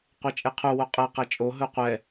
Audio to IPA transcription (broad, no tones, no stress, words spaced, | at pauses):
qʷet͡ʃʼeqʰu woqʼɛ qɛt͡ʃʼo ɦɯqʷɛ